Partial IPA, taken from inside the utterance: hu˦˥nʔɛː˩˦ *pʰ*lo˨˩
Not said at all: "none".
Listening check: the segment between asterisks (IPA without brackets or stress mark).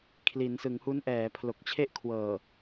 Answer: pʰ